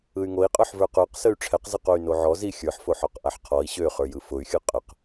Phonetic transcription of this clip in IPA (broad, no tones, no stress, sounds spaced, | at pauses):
ɯ y̯ ŋ o i̯ qʼ ə˞ ħ v ə˞ q ə˞ q s ə y̯ ʈ͡ʂʰ ɛ q z ɯ q o y̯ n o ʕ ɔ z i xʲ ə˞ ħ f o ħ ɔ q ʔ a ħ qʰ ɔ i̯ ɕ ø χ ə˞ j ɯ f ʊ y̯ xʲ ɯ qʼ ə q